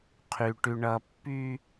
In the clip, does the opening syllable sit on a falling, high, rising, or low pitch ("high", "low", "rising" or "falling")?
high